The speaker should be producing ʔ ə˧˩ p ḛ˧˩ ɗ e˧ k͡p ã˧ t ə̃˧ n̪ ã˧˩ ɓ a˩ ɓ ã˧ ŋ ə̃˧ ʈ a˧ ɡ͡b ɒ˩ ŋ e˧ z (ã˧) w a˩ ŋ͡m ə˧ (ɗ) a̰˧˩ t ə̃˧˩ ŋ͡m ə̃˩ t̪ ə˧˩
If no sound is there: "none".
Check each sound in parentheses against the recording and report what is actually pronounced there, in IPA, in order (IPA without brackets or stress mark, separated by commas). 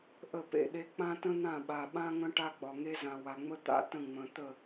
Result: ã˩, t̪